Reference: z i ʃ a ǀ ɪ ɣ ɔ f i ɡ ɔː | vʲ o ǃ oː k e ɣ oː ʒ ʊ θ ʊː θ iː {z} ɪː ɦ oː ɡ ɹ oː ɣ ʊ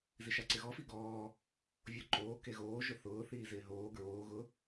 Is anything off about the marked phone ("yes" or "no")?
no